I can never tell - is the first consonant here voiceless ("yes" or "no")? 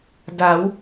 no